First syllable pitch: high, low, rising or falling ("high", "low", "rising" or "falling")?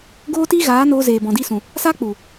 high